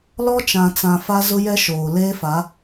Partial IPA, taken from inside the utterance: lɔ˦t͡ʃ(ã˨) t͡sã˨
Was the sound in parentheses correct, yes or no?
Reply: yes